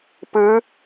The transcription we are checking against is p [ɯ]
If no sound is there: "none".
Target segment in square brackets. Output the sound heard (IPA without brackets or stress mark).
ɯ